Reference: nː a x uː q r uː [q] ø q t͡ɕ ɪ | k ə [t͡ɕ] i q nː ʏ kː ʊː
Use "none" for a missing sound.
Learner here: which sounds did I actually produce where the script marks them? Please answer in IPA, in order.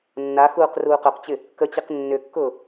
q, t͡ɕ

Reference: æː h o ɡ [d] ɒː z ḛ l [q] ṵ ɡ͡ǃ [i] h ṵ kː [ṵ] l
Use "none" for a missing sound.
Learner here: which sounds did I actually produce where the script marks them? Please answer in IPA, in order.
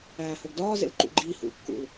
d, ǃ, iː, ṵ

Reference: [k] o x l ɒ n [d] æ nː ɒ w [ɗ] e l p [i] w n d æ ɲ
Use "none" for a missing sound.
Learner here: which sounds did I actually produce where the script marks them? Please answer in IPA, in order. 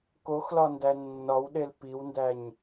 k, d, ɗ, i

